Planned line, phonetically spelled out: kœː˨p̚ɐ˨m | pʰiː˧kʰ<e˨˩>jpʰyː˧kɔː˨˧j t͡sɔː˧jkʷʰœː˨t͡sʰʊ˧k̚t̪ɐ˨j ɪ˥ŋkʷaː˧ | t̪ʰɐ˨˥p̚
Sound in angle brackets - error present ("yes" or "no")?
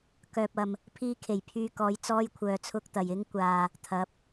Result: no